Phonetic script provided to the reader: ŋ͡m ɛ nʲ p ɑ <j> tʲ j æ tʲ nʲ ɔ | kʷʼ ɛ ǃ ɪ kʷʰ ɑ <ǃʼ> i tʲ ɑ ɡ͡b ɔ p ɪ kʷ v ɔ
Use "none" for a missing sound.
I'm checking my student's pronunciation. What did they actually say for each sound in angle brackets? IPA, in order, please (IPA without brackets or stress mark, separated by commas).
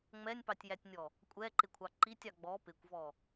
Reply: none, ǃ